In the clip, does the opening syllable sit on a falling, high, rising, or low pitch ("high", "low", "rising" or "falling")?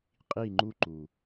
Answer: falling